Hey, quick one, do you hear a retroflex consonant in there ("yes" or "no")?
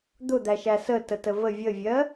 no